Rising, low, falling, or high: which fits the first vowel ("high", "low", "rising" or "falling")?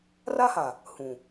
high